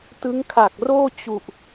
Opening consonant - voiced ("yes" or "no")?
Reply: no